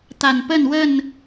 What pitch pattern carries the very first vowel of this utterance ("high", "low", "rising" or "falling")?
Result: low